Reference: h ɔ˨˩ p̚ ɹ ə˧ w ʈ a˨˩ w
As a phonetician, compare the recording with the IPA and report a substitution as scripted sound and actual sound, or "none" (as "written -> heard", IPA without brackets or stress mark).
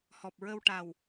none